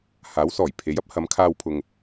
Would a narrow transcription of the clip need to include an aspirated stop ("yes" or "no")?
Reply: yes